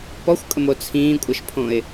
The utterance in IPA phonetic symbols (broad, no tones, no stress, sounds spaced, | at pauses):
p ɔ xʷ kʼ ə m o t͡sʰ ĩː kʷʼ ə ʃ pʰ õ ɪ̯